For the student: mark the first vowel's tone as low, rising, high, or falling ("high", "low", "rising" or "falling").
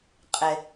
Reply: low